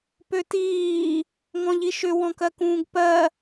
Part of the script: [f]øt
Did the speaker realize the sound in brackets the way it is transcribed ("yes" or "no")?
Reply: no